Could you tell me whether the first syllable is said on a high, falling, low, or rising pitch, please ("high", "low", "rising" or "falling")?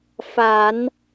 low